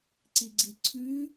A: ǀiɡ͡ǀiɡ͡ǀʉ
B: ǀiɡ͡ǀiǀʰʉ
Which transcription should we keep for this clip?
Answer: B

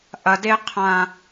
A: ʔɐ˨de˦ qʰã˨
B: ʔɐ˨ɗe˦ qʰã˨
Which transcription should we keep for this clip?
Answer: A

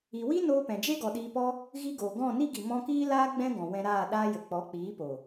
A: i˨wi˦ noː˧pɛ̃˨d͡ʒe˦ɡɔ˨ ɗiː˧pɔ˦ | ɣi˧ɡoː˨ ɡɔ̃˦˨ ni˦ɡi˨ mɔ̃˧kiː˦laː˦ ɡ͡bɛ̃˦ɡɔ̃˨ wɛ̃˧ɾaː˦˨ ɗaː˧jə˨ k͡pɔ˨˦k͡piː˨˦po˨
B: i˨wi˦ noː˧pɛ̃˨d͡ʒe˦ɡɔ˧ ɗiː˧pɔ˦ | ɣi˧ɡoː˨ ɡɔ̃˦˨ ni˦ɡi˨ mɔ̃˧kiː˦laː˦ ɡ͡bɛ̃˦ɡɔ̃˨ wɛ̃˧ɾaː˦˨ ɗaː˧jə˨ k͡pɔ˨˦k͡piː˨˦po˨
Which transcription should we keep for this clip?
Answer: A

